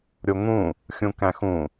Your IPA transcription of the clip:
ɾʲ o ŋ ũ | xʲ ũ k æ̃ x ũ

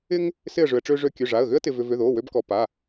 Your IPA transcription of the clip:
ɪ˥ ŋ | s ɪ˥˧ ə̯ ʐ ʏ˧ ə̯ ʈ͡ʂ ø˥ ʐ ø˥ kʲ ø˧˥˧ ʐ a˧˥˧ ə̯ ɣ ʏ˥ ə̯ t ɪ˧ v ʏ˧ v ʏ˧˥˧ ð o˧˥˧ w ø˥ b k ɔ˧˥˧ p a˧˥˧

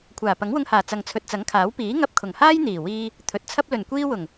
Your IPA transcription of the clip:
kʷʰ aː˨˩ p ɐ˨˥ ŋ w ʊ˧ ŋ h aː˨˩ t͡s ɐ˨ ŋ t͡sʰ ɵ˨ t̚ t͡s ɐ˨˥ ŋ kʰ aː˨˥ w p iː˨˥ ŋ ɐ˧ p̚ kʰ ʊ˨˩ ŋ h aː˥ j n̪ iː˨˩ w iː˧ | t̪ʰ ɵ˨ t̚ t͡sʰ ɐ˥ p̚ l ɵ˨˩ n kʷ iː˧ w ʊ˨˩ ŋ

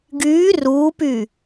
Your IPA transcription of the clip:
ɡ yː r uː p y

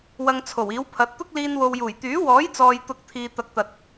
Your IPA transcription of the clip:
w ɐ˧ ŋ t͡sʰ o˨˩ w iː˨˥ w pʰ ɐ˨˥ t̚ t̪ ʊ˥ k̚ l iː˧ n w o˨ w j uː˨˩ j t̪ yː˨˥ w ɔː˨˥ j t͡s ɔː˨ j t̪ ʊ˧ k̚ t̪ʰ iː˨ t̪ ɐ˨˥ k̚ t̪ ɐ˨ t̚

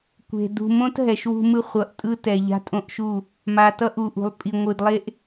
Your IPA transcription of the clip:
kʷ e̤˨ d ṳ˨ m õ˦ t ɦ ɛ˨ ʃ w ṳ˦ m ɯ˦ χʷ ʌ˨ ʔ tʼ ɯ˦ t ɛ˨ ʎ a̤˦ tʼ õ˦ ʔ ʃ u˦˨ | m a˨ t ʌ˦ ʔ u˨ ʔ ṳ˨ lˠ pʼ i˨ ŋʷ ɯ˨ d lˠ e˦ ʔ

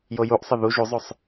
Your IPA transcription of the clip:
j o j u ʔ sˤ ə ð u ʒ u zˤ o sˤ

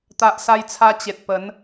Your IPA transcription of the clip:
t̪ a˨ ʔ s a˧ j t͡sʰ a˧ t͡ɕ e˨ t̚ p ə˨˦ n

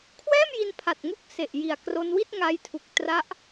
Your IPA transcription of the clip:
kʰ w ɛː˥˩ m j i˧ n pʰ a˨˩ t̚ ŋ u˦˥ k̚ s e˨˩ ʔ j i˨˩ a̯ k r o˧ n w i˥˩ t̚ ŋ a˧ j tʰ u˨˩ k̚ t r a˦˥ ʔ

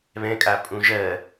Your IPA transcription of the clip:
β ɛ̃ kʼ a pʼ ũ ʒ ɜ

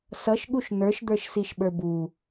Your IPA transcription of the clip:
s ʌ ʃ ɠ u ʃ n̪ ə˞ ʃ d̪ ə˞ ʃ s i ʃ ɓ ə˞ b u

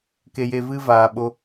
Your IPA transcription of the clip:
k e˧ j e˧ v ɨ˦ v aː˨ ɓ o˧

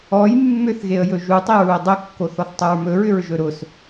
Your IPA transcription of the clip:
ɔ j mː ʏ θ ɣ e ə̯ j ɵ ʒ u tˤ e ɹ u ə̯ dˤ ɵ kː o θ ɔ θ tˤ ʊ ɹ m ɵ ɹ ʏ ɹ ʒ ɵ ɾ ʊ s

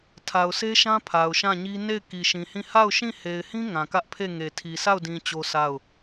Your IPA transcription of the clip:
tʰ a˨ ʊ̯ s e˦ ʃ ã˦ pʰ a˨ ʊ̯ ʃ ã˦˨ ɲ i˦ n e˦˨ ɪ̯ k i˨ ʃ ĩ˨ h ĩ˦˨ h a˦˨ ʊ̯ ʃ ĩ˦˨ h e˨ ɪ̯ h ĩ˦ ŋ ã˨ k ä˦ ʔ pʰ e˦˨ ŋ e˨ tʰ i˨ sʰ a˦˨ ʊ̯ d ĩ˨ t͡ɕ o˦ s a˦˨ ʊ̯

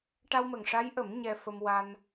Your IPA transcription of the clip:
ʈ a˧ w m ə˨˩ ŋ ʂ a˧˥ j ʔ ə˨˩˦ m ɲ ɛ˧ f ə˧ m w a˧ n

